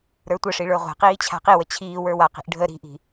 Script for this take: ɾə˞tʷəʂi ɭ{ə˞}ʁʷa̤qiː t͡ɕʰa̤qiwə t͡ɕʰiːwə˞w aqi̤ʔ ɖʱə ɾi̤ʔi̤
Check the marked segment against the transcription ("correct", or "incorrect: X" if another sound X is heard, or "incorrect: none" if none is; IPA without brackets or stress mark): correct